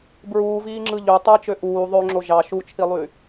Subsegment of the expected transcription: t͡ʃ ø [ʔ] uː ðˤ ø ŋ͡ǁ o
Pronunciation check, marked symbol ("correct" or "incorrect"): correct